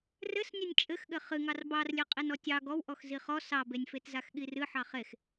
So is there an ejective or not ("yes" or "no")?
yes